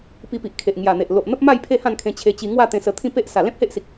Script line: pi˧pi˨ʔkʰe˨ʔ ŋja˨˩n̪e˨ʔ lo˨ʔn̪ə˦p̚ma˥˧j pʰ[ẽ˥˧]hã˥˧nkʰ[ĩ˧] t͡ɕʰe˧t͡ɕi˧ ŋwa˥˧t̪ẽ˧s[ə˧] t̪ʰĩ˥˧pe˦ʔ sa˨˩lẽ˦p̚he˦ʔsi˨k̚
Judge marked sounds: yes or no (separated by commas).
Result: no, no, yes